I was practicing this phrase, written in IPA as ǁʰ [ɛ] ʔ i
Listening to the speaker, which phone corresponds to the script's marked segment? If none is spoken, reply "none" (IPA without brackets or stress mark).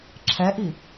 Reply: ɛ